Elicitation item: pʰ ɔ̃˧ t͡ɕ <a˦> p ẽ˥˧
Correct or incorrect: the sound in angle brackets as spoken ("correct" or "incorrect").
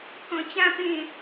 incorrect